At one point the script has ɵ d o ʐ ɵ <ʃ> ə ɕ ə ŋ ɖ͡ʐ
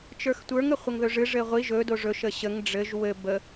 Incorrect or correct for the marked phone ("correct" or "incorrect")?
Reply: correct